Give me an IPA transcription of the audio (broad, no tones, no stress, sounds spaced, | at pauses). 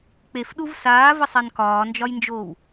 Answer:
k͡p e f ɗ u v s aː v ə sˤ a n k ɒː n d͡ʒ ɒ j n d͡ʒ oː w